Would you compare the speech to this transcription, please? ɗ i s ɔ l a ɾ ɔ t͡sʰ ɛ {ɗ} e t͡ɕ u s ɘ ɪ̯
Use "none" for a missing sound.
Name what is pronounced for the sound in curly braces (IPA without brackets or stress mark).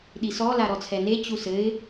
n